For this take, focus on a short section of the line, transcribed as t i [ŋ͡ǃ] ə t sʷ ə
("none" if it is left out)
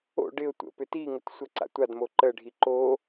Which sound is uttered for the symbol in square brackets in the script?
ŋ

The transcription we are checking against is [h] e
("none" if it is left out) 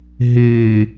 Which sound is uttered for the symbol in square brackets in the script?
ɦ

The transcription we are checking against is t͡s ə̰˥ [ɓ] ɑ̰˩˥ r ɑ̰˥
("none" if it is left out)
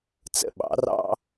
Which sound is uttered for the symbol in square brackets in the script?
ɓ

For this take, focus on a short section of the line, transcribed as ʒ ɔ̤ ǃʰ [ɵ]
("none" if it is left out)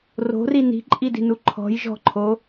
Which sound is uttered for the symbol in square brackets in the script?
o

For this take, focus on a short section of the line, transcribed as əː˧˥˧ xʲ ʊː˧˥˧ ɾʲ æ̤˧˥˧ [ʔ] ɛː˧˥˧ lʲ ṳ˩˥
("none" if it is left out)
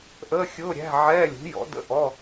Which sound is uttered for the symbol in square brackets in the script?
ʕ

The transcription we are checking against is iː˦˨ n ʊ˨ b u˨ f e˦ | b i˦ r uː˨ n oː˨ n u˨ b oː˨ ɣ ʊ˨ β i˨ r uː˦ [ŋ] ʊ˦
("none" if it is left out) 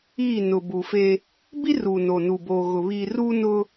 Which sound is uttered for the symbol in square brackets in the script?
n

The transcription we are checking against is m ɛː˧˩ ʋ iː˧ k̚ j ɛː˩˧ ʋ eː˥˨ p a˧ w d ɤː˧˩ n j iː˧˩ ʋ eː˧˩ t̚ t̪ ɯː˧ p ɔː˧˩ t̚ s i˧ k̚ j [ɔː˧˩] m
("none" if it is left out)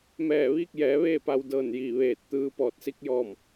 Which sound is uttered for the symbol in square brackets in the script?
ɔː˧˩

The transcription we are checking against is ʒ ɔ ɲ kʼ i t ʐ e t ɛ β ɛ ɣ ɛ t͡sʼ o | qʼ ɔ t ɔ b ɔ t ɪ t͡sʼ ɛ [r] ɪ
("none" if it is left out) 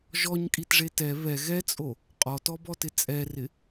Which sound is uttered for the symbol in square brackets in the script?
r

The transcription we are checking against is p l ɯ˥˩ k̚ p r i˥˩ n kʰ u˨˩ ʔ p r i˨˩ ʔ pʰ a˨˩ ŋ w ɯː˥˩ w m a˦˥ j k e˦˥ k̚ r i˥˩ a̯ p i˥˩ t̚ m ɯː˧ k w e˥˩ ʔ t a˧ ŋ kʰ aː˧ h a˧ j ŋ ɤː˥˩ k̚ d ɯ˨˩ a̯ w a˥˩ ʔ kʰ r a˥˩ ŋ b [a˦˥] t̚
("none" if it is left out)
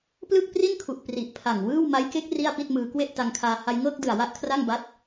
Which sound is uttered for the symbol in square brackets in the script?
a˦˥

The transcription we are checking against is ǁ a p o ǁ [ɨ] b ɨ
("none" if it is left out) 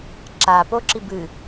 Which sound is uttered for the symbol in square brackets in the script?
i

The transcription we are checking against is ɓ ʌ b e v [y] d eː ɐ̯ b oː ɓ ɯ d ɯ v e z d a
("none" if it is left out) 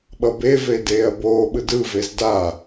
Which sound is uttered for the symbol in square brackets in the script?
e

